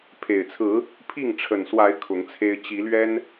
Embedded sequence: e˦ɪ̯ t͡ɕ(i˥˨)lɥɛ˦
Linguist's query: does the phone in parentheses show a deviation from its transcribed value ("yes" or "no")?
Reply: yes